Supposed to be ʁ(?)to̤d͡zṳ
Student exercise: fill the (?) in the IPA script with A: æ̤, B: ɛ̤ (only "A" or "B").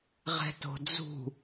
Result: B